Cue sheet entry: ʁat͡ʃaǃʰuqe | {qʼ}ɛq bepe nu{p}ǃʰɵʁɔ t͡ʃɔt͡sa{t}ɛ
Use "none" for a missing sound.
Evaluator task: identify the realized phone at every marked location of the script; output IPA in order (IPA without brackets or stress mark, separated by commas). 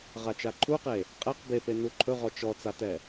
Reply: qʼ, none, t